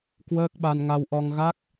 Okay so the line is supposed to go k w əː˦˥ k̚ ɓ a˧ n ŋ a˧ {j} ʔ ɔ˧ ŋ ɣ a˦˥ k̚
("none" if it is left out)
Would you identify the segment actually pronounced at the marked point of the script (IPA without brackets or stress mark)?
w